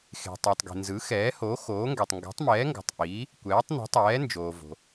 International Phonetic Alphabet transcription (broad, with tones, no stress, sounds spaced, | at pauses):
x e̤˩ tˤ i˩ tˤ ɡ i̤˩ n z ɯ˩˥ x ɛː˩˥ h o˩˥ x oː˩˥ ŋ ɡ ɛ˩ tˤ ŋ ɡ ɛ̤˩˥ tˤ m ɛː˩˥ ŋ ɡ o̤˩ tˤ ʔ iː˩˥ | kʷ ɛː˩˥ tˤ n ṳ˩˥ tˤ ɛː˩˥ n d͡ʒ oː˩ v o̤˩